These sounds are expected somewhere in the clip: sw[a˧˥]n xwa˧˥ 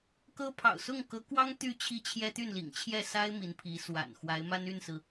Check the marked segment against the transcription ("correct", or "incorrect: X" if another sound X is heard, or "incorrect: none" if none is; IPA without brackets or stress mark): incorrect: a̰˨˩